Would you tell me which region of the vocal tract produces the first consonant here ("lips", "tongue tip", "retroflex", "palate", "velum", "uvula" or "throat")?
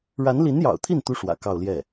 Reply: retroflex